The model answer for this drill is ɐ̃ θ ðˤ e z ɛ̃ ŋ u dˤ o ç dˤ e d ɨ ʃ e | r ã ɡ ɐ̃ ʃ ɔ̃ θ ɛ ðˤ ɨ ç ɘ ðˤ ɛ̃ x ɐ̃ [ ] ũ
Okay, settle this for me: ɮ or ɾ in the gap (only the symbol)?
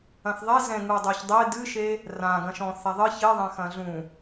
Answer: ɮ